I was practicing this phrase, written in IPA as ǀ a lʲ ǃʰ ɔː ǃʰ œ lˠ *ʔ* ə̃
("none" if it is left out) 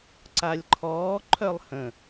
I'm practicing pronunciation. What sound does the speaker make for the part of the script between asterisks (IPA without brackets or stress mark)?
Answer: h